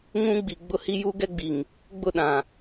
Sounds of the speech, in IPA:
ŋ ũ˦ ɡ͡b i˨ ɡ͡b ʊ˦ h i˦ j u˦ ɡ ɛ˦ ɡ͡b i˨ ŋ | ɡ͡b ʊ˦˨ ɗ ã˨

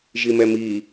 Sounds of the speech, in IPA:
ʒ i m ɛ m i

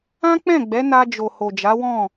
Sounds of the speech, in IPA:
ã˦ k͡p ɛ̃˦˨ ɡ͡b ɛ˨˦ n a˧ d͡ʒ o˨ h o˨ d͡ʒ a˨˦ w ɔ̃˦˨

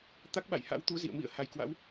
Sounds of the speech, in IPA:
t̪ a˦˥ k̚ ɓ a̰˧˨ j h a̰˧˥ w t̪ u˨˦ z ḭ˧˨ ə̯ m ḭ˧˨ ə̯ h a˨˩ j k w a̰˧˥ w

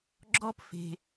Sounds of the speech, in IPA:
ɡ͡ǁ ɔ˧ p f e̤˩

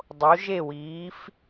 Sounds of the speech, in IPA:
dˤ o˨˦ ʒ e˦˨ w iː˨˦ f

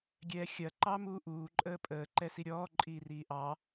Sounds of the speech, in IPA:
ɡʲ ɛː xʲ ɐ ǃ ɑ m uː ʔ uː ǃʼ əː pʼ əː ǃ ɛ s i ɾʲ ɔː ǃʼ iː r iː ʔ ɑ

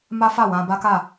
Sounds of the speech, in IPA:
m a˦ f a˦˨ w ã˧ b a˦ k a˦˨

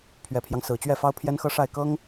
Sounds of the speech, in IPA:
pʰ ɥ ɛ˨˩ pʰ j ɑ˦ ŋ s ɹ̩˨˩ t͡ɕ ɥ ɛ˥˩ f ɑ˥ ʊ̯ pʰ j ɛ˥ n x ɤ˥ ʂ a˥˩ ɪ̯ k ɤ˥ ŋ

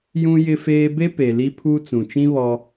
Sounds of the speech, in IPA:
j ũ˦ j ɪ˦ f eː˦ b e˦ p e˨ l i˦ pʰ uː˦ t͡s ũ˨ t͡ʃ ĩ˦ β ɔ˦

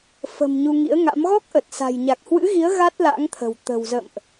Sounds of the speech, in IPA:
f ə̤˨˩ m ɲ u˧ ŋ ḭ˧˥ ə̯ ŋ a̰˧˥ m ɣ ɔ˦˥ k̚ ʔ ə˨˩ t̚ s a̤˨˩ j ɲ a˨˩ k̚ h w ɨ̰˧˥ ɣ i˨˦ ə̯ ɣ a˦˥ t̚ l a̰˧˥ ŋ t̪ʰ ə̤˨˩ w t̪ ə̤˨˩ w z ə̰˧˨ m ʔ

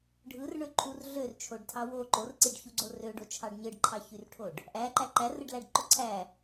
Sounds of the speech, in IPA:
ɖʱ ɯ r ɳ ø ǃʰ u r ɮ ø r t͡ʃʰ o ɖ tʰ ɑ w o ǃ o r ǀ i ɖ ç u ɡ͡ǀ o r ø ɖ o t͡ʃʰ ɑ ɖ ɲ ɯ ɖ ǃʰ ɑ ç y r ʈʰ o ɖ | ʔ æ ǃ æ ǃ æ r ɯ ɖ l æ ɖ ǃ o ǀʰ æ

